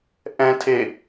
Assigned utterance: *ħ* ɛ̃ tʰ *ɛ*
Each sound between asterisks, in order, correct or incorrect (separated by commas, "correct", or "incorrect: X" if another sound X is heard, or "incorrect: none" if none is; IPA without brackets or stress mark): incorrect: ʔ, incorrect: e